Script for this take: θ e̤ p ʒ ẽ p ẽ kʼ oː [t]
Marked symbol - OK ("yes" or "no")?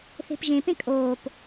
no